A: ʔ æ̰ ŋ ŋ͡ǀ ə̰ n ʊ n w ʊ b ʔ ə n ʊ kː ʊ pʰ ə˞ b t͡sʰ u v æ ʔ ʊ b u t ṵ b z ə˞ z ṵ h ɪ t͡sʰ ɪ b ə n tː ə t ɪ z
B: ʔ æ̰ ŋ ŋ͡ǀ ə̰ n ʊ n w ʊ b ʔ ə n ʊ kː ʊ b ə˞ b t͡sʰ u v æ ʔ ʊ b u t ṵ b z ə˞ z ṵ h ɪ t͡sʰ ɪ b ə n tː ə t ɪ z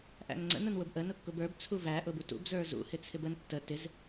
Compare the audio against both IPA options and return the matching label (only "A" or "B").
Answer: B